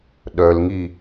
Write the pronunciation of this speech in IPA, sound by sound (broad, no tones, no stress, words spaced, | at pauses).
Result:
ɗœlŋi